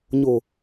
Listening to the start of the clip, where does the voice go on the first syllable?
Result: low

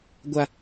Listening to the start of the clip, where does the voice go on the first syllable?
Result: high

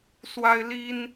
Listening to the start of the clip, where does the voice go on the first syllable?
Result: high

